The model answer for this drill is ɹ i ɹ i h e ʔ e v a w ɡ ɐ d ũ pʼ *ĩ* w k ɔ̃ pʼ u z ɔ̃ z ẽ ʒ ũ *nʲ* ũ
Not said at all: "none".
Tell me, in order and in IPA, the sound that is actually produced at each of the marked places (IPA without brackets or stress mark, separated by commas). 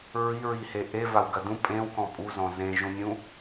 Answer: ẽ, nʲ